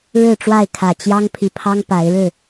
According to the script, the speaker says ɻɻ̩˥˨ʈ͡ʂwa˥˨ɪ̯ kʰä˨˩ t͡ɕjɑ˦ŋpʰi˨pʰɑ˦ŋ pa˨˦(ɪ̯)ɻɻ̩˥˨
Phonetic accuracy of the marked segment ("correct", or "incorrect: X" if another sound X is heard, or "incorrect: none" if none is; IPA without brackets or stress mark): correct